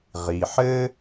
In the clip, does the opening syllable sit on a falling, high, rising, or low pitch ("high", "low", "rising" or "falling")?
low